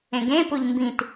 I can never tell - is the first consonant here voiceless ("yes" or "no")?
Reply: no